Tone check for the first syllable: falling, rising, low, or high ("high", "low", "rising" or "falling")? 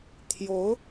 rising